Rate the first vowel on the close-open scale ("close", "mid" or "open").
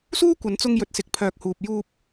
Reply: close